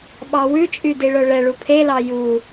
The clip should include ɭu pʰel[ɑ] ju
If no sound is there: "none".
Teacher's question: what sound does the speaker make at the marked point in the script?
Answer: ɑ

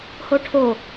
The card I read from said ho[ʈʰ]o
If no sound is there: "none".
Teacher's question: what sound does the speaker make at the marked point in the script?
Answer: ʈʰ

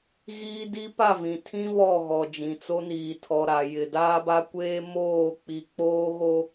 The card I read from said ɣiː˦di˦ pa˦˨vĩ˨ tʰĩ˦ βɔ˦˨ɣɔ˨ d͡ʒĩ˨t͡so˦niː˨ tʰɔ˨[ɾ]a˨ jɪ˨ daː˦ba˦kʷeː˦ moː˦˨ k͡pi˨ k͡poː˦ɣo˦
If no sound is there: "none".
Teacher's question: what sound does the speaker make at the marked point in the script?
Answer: ɾ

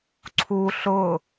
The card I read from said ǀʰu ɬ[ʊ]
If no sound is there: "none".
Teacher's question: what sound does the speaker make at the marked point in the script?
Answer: ʊ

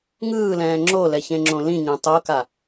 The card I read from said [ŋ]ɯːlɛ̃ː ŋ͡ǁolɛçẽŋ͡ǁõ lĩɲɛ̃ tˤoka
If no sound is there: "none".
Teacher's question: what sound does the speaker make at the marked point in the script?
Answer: ŋ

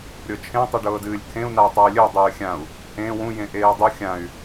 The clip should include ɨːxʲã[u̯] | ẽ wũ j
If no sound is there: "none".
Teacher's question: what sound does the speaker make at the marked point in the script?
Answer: u̯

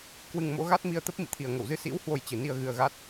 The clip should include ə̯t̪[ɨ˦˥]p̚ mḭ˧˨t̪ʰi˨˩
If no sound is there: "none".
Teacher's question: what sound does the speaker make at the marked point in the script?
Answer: ə˦˥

